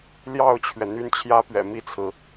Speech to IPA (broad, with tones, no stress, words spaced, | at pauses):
ljɑ˥˩ʊ̯t͡ɕʰɥɛ˩ n̪y˥nt͡ɕʰjä˥pɥɛ̰˨˩ mi˥˩t͡sʰɹ̩˩